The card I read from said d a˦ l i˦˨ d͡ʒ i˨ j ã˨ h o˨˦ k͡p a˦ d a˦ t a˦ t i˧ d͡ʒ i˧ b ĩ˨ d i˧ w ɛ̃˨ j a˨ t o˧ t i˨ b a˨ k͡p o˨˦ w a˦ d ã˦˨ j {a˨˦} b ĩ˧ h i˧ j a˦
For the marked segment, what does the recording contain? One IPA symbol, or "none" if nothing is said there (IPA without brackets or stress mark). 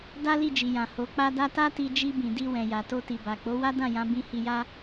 ã˨˦